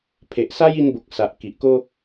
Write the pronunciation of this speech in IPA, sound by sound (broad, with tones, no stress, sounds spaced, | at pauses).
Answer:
pʰ e˨ ʔ s a˦ j i˧ n b o˨ k̚ s a˨ ʔ k i˨ ʔ k o˦